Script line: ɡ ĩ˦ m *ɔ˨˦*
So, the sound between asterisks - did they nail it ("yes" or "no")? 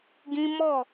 no